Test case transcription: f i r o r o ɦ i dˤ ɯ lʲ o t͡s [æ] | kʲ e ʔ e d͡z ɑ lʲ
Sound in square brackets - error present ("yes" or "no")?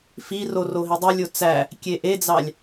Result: no